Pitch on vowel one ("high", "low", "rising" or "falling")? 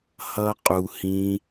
high